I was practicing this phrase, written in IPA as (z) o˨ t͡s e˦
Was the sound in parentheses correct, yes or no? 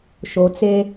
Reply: no